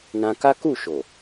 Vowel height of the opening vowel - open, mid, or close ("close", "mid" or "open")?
open